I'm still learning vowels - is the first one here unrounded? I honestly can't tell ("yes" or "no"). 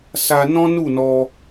yes